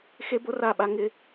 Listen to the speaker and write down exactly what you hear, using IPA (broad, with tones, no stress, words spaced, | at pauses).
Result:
xe˦bo˦ra˦˨ɓa˦ ŋɪ˦